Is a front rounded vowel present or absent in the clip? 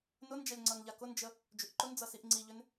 present